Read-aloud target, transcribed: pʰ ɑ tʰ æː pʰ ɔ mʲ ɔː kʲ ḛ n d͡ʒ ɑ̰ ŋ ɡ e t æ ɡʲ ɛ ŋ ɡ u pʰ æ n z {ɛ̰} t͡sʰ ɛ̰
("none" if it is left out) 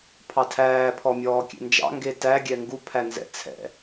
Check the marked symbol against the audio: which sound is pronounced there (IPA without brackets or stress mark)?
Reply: ɛ̰